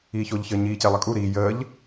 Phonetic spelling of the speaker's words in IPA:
iː ç o ʎ ç əː ɲ iː c e lˠ ə kʼ u ɾ i j əː ʎ

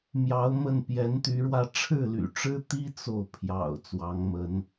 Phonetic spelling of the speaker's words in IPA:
m j ɑ˧˥ ʊ̯ m ə˥˩ n p j ɛ˧˥ n t̪ y˧˥ ɻ w ä˥˧ ʈ͡ʂʰ ɻ̩˥˩ l y̰˨˩ ʈ͡ʂ ɻ̩˥ t̪ i˥ t͡s o˥˩ ʊ̯ pʰ j ɑ̰˨˩ ʊ̯ t͡s w ɑ˧˥ ŋ m ə˧˥ n

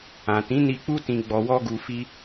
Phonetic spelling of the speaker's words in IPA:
ã˨ t ĩ˨˦ n i˧ k͡p u˧ t ĩ˨ ɡ͡b ɔ˨ w ɔ˧ ɡ u˨ f i˧

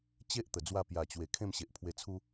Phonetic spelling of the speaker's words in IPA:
t͡ɕ e˦ ʔ t̪ ə˨˩ d͡z w a˥˧ p j a˨˩ t͡ɕ w e˨˩ kʰ ẽ˥˧ m ɕ e˨ ʔ pʰ w e˧ t͡sʰ u˦

